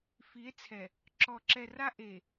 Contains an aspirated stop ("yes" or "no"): yes